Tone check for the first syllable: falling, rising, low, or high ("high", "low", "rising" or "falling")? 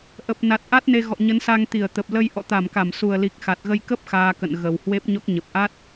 low